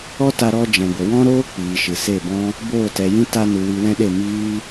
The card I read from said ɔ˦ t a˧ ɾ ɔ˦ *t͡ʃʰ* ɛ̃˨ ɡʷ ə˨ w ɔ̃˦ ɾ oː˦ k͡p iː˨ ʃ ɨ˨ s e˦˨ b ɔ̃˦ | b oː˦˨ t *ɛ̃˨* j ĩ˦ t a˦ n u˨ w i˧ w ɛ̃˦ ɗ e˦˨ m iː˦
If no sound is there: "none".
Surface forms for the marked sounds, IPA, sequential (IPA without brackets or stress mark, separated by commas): d͡ʒ, ɛ˨